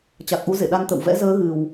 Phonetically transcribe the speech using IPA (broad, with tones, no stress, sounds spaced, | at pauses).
t͡ɕ a˨˩ k̚ ʔ u˨˦ z ḛ˧˨ ɗ a˧ n t̪ ə̰˧˨ w v ɛ̰˧˥ z əː˨˦ ɣ ɨ˨˩ w